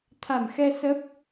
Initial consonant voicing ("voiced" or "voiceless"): voiceless